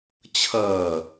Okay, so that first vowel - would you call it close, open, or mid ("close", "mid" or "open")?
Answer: mid